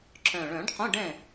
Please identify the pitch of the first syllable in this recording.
low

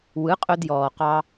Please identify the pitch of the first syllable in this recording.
rising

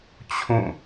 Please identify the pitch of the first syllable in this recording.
falling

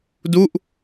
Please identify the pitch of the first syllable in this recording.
falling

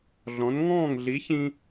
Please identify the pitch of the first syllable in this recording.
rising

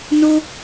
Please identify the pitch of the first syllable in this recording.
high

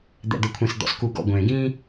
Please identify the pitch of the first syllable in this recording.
low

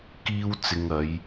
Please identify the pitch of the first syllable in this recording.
high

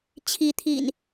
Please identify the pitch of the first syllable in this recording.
rising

